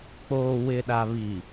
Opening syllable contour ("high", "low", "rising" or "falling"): low